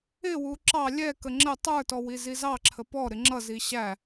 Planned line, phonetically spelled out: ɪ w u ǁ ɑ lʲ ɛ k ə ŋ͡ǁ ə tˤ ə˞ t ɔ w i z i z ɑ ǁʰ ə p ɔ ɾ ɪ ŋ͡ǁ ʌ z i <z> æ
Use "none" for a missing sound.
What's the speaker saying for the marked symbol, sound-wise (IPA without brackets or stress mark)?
ɕ